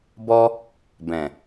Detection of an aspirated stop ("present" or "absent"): absent